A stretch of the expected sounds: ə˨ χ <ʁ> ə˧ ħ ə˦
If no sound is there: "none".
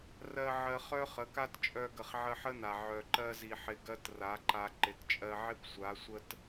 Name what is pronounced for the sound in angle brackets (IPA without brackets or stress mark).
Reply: ʕ